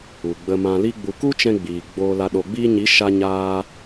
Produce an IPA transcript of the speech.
u˨ɡ͡bə˧ mã˧li˦ɡ͡bu˧ ku˦t͡ʃɛ̃˧ ɡ͡biː˨ ɡ͡boː˧la˧ ɗo˨ɡ͡biː˧ɲi˨˦ ʃa˧ɲaː˧

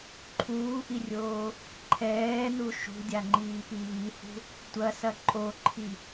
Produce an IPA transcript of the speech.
ǃʰuːʔirʲoː | ǃʰɛːnu ʃṳdʲaŋ͡ǃiːpi βihṳ | tʷɐsɐ ǃʼoǃʰi

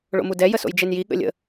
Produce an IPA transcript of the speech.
ɭo̰mudɛ jəso̰jd͡ʒenji ɠə̰lʲə̰

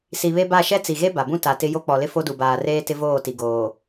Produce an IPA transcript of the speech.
si˨βe˦ba˦˨ ʃɛ˦t͡si˨ɣe˦ ba˨bũ˦ ta˨tɪ˦ jo˦k͡pɔ˨lɪ˦ fo˦du˨baː˨reː˦ tɪ˦voː˦˨ti˨ ɡoː˨

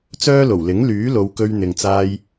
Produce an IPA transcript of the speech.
t͡sœː˥lo˨˩wlɪ˨˥ŋ lyː˨˥lo˨˧wkɵ˧ɥ n̪ɪ˨ŋ t͡saː˧j

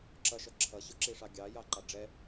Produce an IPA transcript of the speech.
ǁʌʃʌ ǁʰʌɕʊǁiʂɑ ɡʲɑjɑǃɑ ɖ͡ʐɛ

